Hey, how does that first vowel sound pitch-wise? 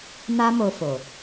high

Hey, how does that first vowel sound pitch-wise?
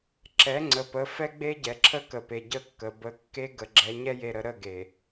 rising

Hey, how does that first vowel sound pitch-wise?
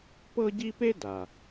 high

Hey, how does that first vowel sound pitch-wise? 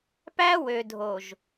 high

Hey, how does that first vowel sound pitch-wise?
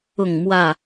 falling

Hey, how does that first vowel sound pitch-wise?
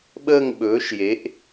falling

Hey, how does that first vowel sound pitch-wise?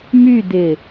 falling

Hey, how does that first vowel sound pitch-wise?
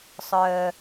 low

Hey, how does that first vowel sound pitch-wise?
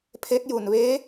rising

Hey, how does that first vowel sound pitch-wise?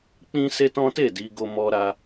high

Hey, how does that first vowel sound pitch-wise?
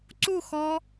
falling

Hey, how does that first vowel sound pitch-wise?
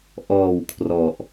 low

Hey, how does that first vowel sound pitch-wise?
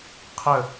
falling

